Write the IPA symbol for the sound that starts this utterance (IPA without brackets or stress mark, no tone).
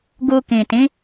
ɡ